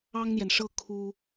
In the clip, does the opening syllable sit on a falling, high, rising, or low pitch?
high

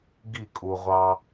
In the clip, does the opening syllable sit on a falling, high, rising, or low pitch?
falling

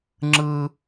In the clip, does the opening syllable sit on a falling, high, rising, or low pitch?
high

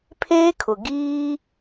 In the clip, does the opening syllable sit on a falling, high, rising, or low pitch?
high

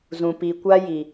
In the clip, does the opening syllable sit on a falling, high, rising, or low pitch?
low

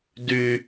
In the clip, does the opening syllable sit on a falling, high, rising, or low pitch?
low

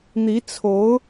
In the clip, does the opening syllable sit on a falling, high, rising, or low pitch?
rising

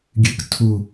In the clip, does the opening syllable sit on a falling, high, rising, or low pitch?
rising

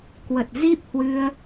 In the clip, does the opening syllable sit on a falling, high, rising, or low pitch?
low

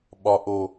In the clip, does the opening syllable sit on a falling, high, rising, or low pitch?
low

